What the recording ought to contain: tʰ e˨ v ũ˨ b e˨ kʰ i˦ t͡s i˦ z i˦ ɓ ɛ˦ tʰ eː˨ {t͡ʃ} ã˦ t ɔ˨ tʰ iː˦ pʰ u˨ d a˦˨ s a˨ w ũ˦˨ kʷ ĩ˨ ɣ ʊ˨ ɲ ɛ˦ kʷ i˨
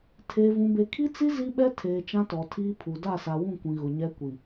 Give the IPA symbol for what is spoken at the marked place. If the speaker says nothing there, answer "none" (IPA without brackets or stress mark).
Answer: t͡ʃ